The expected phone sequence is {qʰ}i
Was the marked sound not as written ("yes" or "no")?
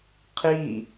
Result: no